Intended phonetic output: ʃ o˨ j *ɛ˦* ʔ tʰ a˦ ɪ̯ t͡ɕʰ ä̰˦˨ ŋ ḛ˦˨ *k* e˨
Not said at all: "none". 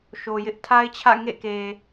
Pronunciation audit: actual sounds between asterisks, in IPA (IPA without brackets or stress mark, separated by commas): ɪ˦, k